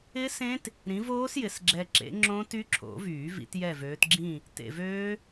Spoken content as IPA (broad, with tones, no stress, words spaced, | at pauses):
ɪ˦˥sẽ˦˥t | ɾĩ˨˦voː˦˥sjɪ˨sɡ͡ǁɛ˨ ǁḛ˨˦ŋ͡ǁõ˦˥ty˦˥ǁʰo̰˨˩˦ vyː˨˩˦vḭ˨˦tjɛ˦˨vøː˨˦t ɡ͡ǁĩ˦˨ | tḛ˨vøː˦˥